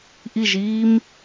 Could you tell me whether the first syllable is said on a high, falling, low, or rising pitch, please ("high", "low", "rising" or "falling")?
falling